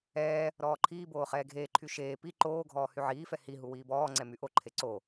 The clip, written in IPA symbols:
ɛː | ɾ ɔː ǃʰ iː b oː χ ɛː ɡʱ eː ǃʰ y ʃ eː p i ǃ oː ɡʱ ɔː h y ʕ iː f ɛ h i ɦ u w iː b ɔː ŋ͡ǀ ɛ m y ʔ o ǃʰ e ǀ o

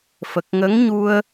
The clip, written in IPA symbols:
f ə˨˩ k̚ ŋ ə˧˥ ŋ ɲ u˧ ə̯

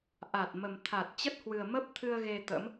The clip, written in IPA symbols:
ʔ a˨˩ t̚ m ə˨˩ m t̪ʰ a˨˩ t̚ t͡ɕ ə˦˥ t̚ h w ɨ˨˩ ə̯ m ə˦˥ p̚ t̪ʰ ɨ˧ ə̯ ɣ e˧ t̪ ə̰˧˥ m

